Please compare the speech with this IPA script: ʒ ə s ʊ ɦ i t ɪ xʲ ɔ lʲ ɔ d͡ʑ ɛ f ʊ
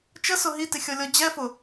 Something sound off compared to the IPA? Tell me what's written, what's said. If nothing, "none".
ʒ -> t͡ʃ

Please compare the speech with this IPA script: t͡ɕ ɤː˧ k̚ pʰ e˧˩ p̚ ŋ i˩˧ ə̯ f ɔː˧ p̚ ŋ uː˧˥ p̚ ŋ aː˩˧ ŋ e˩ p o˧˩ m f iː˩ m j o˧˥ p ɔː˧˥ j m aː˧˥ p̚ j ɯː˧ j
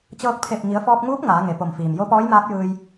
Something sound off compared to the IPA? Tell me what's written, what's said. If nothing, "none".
none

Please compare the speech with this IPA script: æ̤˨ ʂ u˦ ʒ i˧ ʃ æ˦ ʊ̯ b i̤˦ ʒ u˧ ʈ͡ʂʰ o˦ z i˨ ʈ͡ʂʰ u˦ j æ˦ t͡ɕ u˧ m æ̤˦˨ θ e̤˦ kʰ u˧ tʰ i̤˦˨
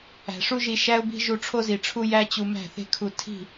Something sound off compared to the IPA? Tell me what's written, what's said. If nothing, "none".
none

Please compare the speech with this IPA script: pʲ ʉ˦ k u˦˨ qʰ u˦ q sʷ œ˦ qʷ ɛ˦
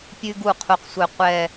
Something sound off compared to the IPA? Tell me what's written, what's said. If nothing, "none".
k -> ɡ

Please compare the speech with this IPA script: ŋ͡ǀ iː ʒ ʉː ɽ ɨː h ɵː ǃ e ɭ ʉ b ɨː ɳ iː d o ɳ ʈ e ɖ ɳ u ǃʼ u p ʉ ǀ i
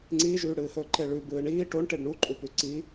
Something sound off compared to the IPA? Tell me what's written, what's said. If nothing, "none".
d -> ʈ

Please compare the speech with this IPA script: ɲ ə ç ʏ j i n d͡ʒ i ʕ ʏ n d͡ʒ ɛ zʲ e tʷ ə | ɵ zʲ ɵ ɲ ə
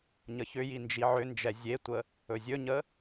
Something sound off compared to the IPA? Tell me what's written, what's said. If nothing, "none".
none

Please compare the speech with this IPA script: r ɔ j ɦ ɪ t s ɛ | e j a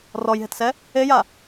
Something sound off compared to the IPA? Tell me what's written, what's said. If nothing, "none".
none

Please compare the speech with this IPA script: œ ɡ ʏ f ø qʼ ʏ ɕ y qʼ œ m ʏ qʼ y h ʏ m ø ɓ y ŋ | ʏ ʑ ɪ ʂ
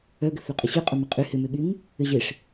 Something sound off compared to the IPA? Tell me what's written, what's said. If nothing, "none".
none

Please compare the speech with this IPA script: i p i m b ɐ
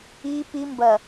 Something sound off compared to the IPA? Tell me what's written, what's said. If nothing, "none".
none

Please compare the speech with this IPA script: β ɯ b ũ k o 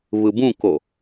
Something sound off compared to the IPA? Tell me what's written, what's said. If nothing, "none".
none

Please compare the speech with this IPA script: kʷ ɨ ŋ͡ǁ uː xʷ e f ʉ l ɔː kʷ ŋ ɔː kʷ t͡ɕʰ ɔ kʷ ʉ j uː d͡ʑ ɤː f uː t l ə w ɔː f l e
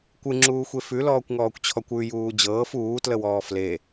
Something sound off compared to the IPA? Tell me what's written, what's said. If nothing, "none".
none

